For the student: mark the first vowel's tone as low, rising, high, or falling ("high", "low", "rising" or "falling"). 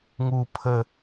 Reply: low